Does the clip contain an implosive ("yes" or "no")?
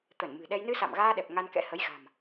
yes